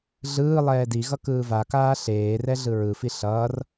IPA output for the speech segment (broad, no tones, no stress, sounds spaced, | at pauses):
ɮ ɯː lˠ ɛː d i ɣ ʌ k ɯː v a k aː ɬ eː r ɛ ɮ ɯ ɹ ɯ f i ɬ ʌː r